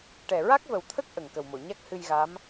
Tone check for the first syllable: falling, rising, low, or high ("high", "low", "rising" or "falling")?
low